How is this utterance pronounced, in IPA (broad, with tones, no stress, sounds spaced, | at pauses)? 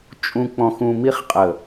t͡ʃʼ ũ˨ k͡p ɔ̃˨ x ũ˨ m i˦ χ qʼ ə˨